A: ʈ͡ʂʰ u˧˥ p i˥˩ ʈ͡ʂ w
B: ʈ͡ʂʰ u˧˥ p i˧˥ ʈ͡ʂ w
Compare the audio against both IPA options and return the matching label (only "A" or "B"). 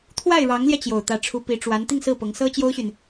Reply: B